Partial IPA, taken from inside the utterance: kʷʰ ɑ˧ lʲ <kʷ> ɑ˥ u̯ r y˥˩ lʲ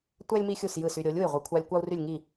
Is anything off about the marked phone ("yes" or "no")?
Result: no